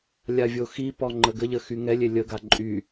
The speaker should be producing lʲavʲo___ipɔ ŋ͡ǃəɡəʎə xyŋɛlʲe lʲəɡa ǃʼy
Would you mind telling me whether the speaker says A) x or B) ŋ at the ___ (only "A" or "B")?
A